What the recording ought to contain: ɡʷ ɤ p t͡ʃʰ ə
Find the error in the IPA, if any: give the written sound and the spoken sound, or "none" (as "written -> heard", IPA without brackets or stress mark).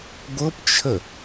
none